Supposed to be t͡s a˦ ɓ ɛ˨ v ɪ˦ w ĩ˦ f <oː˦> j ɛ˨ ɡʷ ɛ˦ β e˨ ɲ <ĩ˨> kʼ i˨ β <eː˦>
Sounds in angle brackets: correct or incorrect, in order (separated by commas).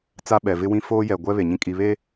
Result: correct, incorrect, incorrect